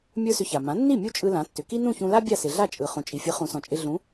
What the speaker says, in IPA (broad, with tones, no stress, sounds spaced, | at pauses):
mʲ ə˞˥ s ʏ˧ ç a˩ m ã˩˥ nː i˥˩ mʲ u˥ t͡ʃʼ ɯ˧ l ã˩˥ tː ʏ˩ k i˥ n ũ˥˩ ç ũ˧ l a˥ bʲ a˥˩ s ɪ˩ ɮ a˥˩ t͡ʃʼ ɯ˩ χ ũ˩ t͡ʃʼ i˩ fʲ ɯ˩˥ χ ũ˩˥ s ɔ̃˩ t͡ʃʼ ɪ˧ ɮ ũ˩˥